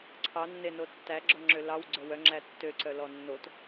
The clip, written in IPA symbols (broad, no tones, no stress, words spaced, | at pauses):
ǀʰɑnːe notːæɡ͡ǁɔ ŋ͡ǁølɑw ɡ͡ǀœwœ ŋ͡ǁætːøǀœ lɔnːot